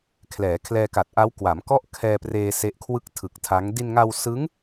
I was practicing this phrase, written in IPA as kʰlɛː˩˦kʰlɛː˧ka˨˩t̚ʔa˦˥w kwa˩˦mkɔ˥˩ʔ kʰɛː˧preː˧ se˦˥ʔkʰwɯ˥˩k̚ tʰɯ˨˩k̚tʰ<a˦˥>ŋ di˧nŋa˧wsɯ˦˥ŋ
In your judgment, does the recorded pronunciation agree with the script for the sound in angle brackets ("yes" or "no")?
yes